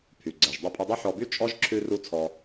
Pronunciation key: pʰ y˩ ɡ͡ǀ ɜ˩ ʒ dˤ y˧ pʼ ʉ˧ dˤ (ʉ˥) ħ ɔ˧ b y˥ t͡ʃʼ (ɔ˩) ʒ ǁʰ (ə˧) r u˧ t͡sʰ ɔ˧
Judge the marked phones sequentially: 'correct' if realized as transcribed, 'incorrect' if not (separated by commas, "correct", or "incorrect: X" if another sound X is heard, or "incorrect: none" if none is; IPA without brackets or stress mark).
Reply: correct, incorrect: ɔ˥, incorrect: ʉ˧